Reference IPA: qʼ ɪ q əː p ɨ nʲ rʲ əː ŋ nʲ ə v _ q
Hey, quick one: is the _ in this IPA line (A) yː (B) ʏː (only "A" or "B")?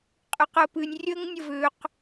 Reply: B